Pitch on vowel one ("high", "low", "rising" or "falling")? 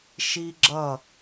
high